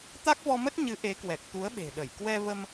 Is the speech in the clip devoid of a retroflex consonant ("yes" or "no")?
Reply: yes